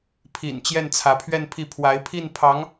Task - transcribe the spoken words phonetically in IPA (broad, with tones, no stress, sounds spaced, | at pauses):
pʰ ḭ˨˩ n t͡ɕ j ɛ˥˩ n t͡sʰ ä˧˥ pʰ ɥ ɛ˥˧ n pʰ i˥˩ pʰ w a˧˥ ɪ̯ pʰ i˥˩ n pʰ ɑ˧˥ ŋ